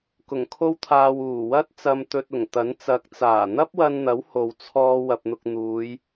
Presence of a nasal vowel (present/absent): absent